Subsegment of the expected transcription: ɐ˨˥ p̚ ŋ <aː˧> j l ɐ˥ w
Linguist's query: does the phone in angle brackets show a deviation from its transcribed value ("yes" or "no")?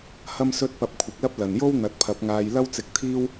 no